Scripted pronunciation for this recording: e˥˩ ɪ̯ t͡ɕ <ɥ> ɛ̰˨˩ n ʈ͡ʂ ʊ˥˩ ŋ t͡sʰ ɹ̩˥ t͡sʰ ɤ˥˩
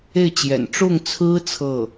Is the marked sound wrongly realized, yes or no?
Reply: yes